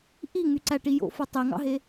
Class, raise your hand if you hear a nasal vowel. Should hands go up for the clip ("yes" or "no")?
no